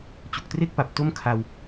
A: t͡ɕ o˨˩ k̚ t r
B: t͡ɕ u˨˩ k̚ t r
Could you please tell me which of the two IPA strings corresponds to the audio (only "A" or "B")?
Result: B